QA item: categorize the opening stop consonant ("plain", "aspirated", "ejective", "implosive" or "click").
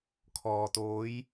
aspirated